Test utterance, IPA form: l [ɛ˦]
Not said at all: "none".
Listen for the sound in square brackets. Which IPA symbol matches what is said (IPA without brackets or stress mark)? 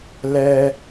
ɛ˦